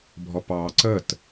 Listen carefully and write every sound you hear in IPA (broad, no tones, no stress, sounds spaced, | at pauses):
bʱ ɔ p ɑː ǀ ə t